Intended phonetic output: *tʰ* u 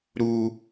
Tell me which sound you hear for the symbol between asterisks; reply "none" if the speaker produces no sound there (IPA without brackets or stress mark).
ɾ